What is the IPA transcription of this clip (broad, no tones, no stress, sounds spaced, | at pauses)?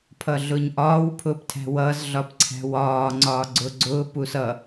pʰ ʌ ɮ ʊː ɲ ʔ ɒː w pʰ ʊː p tʰ æ̤ w ʌː z ɮ ɒ p ǀʰ æ̤ w ɒː ŋ͡ǀ ɒː ɡ͡ǀ ʊː ɡ͡ǀ ʊː p u s ʌ